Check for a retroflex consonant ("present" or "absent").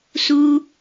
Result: absent